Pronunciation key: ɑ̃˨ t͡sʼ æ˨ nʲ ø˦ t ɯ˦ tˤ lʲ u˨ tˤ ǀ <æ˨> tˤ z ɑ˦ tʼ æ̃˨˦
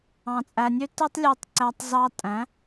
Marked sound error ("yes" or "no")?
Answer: no